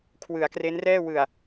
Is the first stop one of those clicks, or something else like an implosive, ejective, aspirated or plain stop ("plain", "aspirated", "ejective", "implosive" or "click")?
aspirated